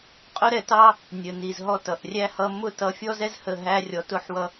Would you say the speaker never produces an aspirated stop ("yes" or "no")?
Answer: yes